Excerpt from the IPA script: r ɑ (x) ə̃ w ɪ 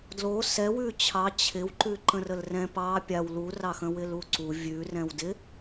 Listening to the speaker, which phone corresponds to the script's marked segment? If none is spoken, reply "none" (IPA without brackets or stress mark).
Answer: x